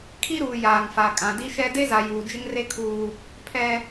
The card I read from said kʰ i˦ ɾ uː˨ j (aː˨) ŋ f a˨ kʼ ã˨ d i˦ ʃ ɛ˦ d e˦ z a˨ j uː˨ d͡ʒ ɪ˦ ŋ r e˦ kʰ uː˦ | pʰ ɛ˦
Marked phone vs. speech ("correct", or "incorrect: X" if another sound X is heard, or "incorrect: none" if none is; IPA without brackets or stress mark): correct